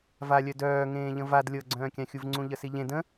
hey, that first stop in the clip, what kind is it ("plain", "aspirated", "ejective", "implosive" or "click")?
plain